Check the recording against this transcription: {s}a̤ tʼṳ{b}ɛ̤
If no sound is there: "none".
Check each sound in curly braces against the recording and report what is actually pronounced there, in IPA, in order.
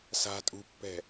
s, pː

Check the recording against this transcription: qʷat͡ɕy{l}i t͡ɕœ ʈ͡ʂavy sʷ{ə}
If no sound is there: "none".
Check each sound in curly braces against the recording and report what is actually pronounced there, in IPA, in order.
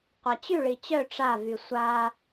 ɭ, a

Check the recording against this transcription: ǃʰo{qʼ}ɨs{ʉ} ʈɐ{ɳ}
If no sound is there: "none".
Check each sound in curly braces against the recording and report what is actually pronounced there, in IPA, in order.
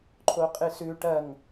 qʼ, ʉ, ŋ

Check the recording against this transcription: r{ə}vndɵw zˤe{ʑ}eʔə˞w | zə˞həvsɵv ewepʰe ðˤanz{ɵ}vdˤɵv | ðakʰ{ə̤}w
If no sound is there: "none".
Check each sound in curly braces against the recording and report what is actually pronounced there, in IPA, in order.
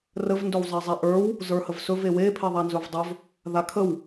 ə, zˤ, ɵ, ə

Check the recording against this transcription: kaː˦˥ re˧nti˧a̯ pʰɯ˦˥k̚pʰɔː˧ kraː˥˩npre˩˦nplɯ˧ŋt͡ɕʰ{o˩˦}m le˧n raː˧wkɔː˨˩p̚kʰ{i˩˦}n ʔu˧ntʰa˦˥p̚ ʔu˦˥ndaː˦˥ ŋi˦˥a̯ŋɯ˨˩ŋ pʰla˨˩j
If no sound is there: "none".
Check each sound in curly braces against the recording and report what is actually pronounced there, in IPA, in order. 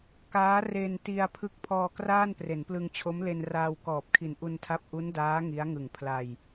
o˦˥, i˨˩

